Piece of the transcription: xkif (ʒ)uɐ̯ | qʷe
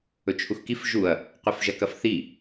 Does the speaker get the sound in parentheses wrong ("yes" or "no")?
no